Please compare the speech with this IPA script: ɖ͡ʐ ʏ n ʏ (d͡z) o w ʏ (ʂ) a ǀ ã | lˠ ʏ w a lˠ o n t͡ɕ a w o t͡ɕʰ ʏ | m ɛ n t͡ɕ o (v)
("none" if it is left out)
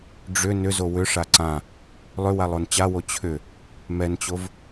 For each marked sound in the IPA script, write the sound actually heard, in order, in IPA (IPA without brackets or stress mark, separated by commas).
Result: z, ʂ, v